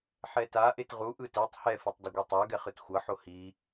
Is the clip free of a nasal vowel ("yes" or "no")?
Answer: yes